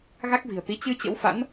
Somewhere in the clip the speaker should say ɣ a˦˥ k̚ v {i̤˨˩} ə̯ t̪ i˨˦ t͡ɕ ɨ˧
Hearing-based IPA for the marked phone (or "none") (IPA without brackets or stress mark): i̤˨˩